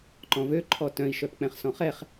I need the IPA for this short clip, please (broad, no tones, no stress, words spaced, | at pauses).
ǃɔ̃vø ǃʰɔtœ̃i̯ʃœpk͡pɛ̃χ sɔ̃χɛχ